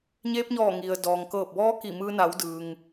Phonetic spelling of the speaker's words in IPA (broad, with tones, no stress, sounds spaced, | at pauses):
ɲ eː˧ p̚ ɲ ɔː˧˩ ŋ i˩ ə̯ d ɔː˩ ŋ k ɤː˧˩ p̚ b ɔː˧˥ k i˧˩ m ɯː˧ n a˩˧ w d ɯː˩ ŋ